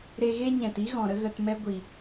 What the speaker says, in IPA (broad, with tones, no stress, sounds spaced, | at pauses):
ɾ e˧ ɣ e˦ ɲ ɛ̃˨ t i˦ ɣ ɔ̃˨ ɾ ə˦ ɣ ə˧ t m ɛ˦ ɡʷ i˨